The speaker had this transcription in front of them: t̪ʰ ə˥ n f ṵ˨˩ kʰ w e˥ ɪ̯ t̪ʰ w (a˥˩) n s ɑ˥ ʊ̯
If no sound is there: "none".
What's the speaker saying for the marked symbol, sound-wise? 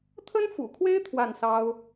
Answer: a˥˩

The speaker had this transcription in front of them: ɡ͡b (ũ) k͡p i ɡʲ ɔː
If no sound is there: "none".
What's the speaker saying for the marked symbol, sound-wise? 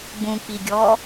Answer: ũ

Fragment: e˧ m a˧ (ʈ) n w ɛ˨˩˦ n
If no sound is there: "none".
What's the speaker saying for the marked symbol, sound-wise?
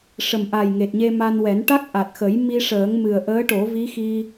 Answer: none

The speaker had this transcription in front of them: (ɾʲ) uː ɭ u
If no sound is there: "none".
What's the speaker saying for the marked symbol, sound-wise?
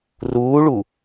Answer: r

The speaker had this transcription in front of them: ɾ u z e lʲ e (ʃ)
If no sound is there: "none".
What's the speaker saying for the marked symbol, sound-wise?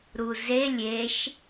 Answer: ʃ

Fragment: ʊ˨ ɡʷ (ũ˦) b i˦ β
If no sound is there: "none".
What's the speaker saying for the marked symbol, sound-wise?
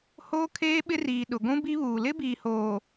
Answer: ũ˦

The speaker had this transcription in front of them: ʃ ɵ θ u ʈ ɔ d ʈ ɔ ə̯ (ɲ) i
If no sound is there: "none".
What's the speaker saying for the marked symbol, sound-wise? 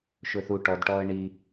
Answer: ɳ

